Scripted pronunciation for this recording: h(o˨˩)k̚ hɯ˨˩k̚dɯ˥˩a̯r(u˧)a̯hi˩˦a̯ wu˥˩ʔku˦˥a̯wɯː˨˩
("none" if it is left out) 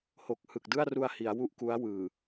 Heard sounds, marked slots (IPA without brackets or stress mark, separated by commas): o˨˩, u˧